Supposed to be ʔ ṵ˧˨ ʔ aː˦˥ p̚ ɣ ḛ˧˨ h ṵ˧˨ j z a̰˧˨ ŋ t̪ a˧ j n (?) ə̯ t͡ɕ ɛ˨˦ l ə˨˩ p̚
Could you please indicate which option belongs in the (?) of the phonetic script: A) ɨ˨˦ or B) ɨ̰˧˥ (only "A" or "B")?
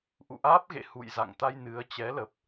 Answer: A